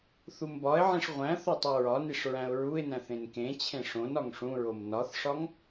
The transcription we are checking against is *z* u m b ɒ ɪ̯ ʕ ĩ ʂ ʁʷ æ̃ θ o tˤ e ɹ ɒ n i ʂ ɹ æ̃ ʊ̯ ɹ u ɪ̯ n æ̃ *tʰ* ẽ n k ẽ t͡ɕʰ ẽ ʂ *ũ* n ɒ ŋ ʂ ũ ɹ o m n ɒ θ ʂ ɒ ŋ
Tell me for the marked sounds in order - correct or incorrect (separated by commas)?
incorrect, incorrect, incorrect